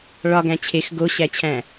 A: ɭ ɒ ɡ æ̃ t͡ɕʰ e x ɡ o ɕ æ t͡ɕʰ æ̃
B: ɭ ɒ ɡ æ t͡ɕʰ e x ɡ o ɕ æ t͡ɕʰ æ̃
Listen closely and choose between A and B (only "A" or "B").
A